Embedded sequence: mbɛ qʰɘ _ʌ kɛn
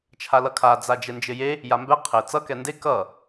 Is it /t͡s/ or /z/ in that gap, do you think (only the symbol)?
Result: t͡s